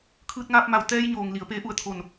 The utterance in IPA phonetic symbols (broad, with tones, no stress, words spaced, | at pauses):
kʰɯː˧t̚ŋaː˧p̚ma˧˩w t̪ɛː˧jɲoː˩ŋ li˩˧ə̯peː˧˥ ʔu˧˩ə̯t̪ʰo˧˩n